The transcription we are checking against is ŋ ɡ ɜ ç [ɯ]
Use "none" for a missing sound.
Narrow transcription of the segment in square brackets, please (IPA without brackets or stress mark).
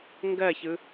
ɯ